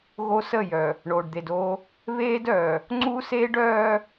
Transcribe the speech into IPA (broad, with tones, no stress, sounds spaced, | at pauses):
ɣ o˦ s ə˦˨ j œ˨ | ɳ oː˨ ɖ d̪ e˨ d oː˦ | β eː˦ d œː˨ | ŋ͡ǀ u˦ s e˦ ɖ œː˦